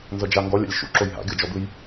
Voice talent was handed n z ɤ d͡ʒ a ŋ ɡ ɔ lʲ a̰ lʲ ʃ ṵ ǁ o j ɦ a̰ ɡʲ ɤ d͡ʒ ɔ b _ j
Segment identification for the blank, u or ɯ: ɯ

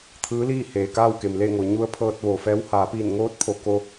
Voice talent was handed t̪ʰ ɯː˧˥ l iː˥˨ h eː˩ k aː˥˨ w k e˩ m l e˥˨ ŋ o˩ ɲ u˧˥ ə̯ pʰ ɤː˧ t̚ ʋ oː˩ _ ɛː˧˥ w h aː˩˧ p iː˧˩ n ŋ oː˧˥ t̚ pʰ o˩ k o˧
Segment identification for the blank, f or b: f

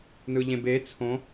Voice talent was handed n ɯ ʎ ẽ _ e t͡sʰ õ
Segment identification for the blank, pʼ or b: b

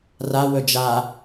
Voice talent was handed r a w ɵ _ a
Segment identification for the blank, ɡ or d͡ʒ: d͡ʒ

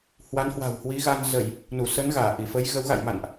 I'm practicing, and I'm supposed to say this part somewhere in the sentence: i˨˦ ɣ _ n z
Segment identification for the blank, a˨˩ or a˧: a˧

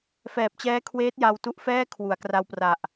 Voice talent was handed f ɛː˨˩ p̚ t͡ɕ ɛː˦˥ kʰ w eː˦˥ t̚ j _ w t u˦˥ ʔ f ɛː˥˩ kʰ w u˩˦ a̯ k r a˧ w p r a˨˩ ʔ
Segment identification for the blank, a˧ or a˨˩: a˧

